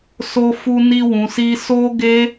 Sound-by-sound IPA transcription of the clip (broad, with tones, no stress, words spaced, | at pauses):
so˦fu˦ ni˦wũ˧si˦ so˦ɡe˦